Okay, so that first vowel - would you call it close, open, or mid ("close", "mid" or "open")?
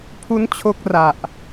close